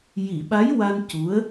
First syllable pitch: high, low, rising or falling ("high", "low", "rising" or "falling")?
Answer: low